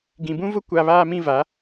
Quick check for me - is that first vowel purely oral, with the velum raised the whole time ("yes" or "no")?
no